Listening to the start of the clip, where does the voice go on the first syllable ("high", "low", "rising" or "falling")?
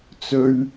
low